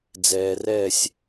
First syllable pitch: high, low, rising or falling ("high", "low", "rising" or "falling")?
low